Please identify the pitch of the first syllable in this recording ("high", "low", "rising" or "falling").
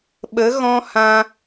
rising